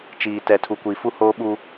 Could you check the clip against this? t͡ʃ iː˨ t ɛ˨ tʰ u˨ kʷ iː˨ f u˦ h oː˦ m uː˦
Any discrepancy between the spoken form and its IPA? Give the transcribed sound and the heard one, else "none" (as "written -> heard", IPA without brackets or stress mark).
m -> ɓ